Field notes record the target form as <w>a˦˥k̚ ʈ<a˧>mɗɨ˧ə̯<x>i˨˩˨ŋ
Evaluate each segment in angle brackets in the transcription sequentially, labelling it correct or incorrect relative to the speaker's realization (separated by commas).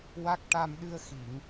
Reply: correct, correct, correct